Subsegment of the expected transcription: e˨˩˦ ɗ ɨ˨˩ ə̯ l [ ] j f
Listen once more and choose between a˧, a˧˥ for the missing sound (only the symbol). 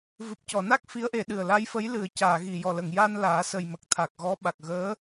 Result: a˧˥